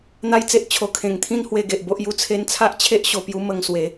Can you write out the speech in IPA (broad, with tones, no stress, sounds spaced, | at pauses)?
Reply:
n̪ a˧ j t͡s e˨ ʔ t͡ɕʰ o˨˩ kʰ ẽ˨˩ ŋ t̪ʰ ĩ˥˧ n h w e˥˧ ɡ e˨ ʔ b o˦ ʔ j u˦ t͡sʰ e˧ n t͡sʰ a˦ ʔ t͡ɕʰ e˦ ʔ ɕ o˨˩ p j u˧ m ə˧ ŋ s w e˨˦